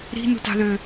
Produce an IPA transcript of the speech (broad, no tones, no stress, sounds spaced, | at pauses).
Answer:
ɾ i̤ n ṳ t ɑ̤ ð ø